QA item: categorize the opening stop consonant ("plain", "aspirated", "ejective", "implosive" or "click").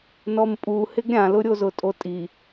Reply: ejective